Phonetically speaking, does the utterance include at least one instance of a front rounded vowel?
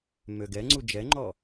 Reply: yes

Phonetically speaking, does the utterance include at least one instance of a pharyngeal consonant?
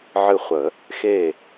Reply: yes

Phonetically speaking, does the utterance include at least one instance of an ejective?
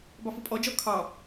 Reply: yes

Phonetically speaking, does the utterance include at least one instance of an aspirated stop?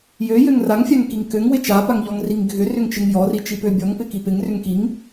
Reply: no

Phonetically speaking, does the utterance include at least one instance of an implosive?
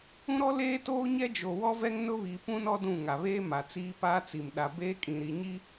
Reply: yes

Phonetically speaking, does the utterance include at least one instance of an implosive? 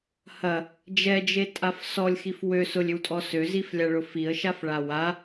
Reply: no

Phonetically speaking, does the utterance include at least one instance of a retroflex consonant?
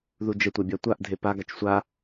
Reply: no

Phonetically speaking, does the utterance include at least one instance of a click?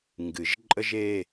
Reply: yes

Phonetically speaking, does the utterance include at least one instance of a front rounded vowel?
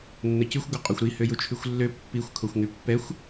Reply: yes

